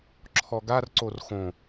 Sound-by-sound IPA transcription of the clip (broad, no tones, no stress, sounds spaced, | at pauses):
ǁʰ ɔ ɡ a r ǀ o r x õ